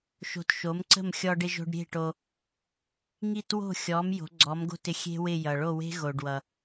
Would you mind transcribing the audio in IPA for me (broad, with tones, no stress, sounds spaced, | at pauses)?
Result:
ʃ o̤˧ t ʃ o˩˥ m ǀ ə̤˥˩ m xʲ ɔ˧ ɖ ɪ˧ ʒ o̤˧ ɖ ɾʲ e̤˥˩ ʈ o˧ | ŋ i˥˩ t w o̤˥˩ xʲ ɔ˩˥ m j o̤˩˥ ɡ͡ǀ ɔ˩˥ m ɡ o̤˥˩ t ɪ˧ xʲ e̤˥ w ɪ˥˩ j ʌ˩ ɭ o˥˩ w e̤˥ ɣ o˩ ɖ w ʌ˩